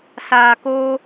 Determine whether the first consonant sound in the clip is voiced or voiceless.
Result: voiceless